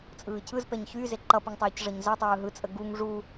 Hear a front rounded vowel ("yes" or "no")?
yes